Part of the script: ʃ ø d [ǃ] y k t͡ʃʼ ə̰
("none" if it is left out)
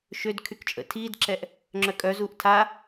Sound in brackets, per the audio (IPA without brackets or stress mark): kʰ